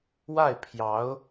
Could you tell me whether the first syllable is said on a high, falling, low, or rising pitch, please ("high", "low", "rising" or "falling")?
falling